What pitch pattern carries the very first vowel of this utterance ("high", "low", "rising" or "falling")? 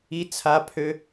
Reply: low